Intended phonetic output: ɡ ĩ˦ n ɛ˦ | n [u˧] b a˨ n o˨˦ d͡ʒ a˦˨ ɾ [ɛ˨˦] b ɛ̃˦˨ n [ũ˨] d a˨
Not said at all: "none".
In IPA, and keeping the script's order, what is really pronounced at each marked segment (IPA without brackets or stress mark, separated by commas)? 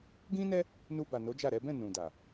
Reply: u˧, ɛ˨˦, ũ˨